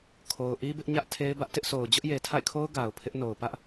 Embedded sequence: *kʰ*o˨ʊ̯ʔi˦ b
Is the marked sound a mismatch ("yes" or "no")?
no